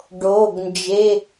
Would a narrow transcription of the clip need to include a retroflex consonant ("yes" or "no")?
yes